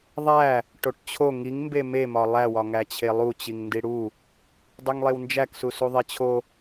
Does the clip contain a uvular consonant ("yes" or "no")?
no